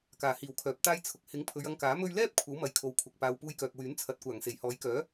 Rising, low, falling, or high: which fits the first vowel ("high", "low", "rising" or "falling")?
low